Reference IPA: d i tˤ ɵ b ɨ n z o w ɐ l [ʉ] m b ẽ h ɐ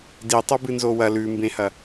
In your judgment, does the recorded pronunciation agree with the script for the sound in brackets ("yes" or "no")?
yes